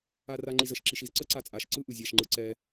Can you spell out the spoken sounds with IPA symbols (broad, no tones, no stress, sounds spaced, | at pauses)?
a r a ŋ͡ǃ i z ə ʃ ǁ i ʃ i z ǀ ə ǀ a t͡sʼ a ʃ ǀ ɯ ʔ ɯ zʲ a ʃ ŋ͡ǃ ɯ ǀ ɛ